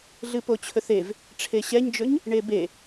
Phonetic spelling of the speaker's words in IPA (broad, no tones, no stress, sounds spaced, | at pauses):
ɮ ɨ p o t͡ɕʰ ɵ θ e v | ʈ͡ʂʰ e ɕ ɛ ɲ d͡ʒ ɵ ɲ | ɳ e b e